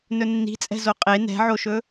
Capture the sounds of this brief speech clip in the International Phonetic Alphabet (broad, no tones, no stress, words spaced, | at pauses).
nɵnːi̤t͡sʼɛ̤zo qʼe nɛ̤ʕoʃɵ